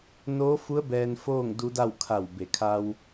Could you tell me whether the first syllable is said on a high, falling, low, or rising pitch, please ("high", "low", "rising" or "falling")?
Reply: rising